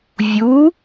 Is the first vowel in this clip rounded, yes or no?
yes